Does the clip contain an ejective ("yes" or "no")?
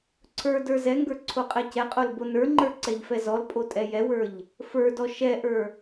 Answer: yes